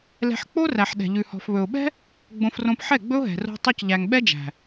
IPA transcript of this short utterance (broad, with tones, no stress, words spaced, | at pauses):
lɛ̤˧ħk͡po˦ræ˨ħ ɗɛ̤˨ʎʉ˨ hɔ̤˨fβɵ˨ʊ̯ɓɛ̤˦ | ɡ͡bõ˧frõ˧p ħɛ˦˨ɡ͡bɵ˦ʊ̯ɦɛ̤˨ ro̤˧tˤʉ˧c ʎæ˨ŋɓɛ˦d͡ʒæ̤˨